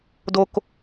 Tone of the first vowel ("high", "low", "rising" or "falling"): low